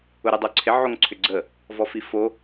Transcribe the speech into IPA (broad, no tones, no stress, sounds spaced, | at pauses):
ʊ ɾ y dˤ o ǀʰ ɪ ʕ o ŋ ǀʰ ʏ ɡ͡ǀ ə | v ɔ f i f o